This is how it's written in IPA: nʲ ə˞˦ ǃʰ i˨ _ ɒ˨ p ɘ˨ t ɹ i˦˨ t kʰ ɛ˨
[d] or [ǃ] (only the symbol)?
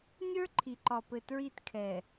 ǃ